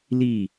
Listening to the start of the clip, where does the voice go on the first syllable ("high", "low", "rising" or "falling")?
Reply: falling